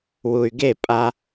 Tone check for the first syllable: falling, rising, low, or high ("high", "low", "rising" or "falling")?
low